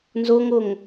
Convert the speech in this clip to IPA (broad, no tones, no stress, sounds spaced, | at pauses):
n z o ŋ o ŋ